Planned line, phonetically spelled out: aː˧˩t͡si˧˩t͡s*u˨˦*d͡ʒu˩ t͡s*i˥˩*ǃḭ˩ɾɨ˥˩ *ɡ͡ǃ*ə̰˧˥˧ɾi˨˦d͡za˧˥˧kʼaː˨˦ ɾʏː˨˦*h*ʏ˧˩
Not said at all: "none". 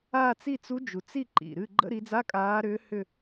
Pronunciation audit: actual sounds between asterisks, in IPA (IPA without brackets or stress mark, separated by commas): u˨˦, i˥˩, ɡ͡ǃ, h